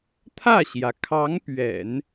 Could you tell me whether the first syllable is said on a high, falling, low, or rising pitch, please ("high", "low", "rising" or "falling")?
falling